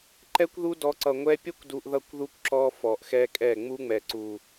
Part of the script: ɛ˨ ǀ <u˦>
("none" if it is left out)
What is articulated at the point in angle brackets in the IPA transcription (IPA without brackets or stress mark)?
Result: u˨